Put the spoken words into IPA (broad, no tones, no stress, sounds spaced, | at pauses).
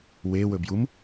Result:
w e w ɵ b j u m